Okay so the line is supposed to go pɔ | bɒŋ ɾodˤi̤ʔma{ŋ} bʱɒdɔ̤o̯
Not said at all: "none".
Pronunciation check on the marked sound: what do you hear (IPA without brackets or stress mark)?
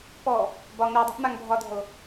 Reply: ŋ